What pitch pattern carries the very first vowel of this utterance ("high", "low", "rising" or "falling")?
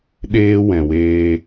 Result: high